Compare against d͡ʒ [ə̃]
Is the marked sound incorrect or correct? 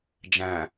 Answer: incorrect